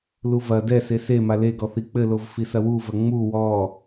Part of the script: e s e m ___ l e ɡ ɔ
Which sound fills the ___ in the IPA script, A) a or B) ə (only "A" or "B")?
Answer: A